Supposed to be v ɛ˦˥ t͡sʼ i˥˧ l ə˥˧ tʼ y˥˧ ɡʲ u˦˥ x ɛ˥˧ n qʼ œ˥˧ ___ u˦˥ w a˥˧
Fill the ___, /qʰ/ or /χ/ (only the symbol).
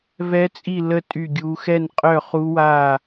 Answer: χ